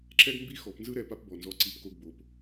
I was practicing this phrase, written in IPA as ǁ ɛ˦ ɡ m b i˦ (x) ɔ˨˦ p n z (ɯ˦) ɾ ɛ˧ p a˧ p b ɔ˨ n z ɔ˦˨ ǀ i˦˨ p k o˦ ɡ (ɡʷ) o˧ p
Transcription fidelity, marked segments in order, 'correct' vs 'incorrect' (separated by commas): correct, correct, incorrect